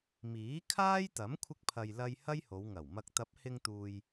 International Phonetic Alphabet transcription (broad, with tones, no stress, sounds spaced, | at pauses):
m iː˨˥ kʰ aː˥ j t̪ ɐ˨˥ m kʷʰ ɪ˧ k̚ pʰ ɐ˨ j l ɐ˧ j h ɐ˥ j h o˨˧ w ŋ ɐ˨˩ w m ɐ˧ k̚ t̪ ɐ˨˥ p̚ h ɪ˧ ŋ t̪ uː˨ j